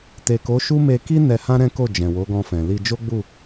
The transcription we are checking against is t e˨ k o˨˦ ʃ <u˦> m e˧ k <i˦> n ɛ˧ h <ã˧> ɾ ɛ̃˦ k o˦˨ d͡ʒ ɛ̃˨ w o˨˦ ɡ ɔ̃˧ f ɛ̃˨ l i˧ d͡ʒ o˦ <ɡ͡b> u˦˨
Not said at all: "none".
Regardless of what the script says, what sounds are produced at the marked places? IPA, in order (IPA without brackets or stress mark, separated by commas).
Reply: u˦, i˦, ã˦, ɡ͡b